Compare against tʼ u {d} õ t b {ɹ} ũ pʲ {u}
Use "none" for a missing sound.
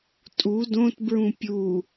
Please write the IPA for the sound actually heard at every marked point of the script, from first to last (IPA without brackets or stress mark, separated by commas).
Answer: d, ɹ, u